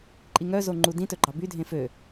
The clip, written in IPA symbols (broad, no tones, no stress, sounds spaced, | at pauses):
ǃʼ i ŋ œ z o ŋ͡ǃ u d ĩ t ɵ ɡ͡ǃ ɑ b y dʱ ẽ f ø